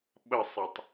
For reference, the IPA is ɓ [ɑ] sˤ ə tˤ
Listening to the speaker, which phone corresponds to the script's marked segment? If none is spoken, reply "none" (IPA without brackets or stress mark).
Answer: ə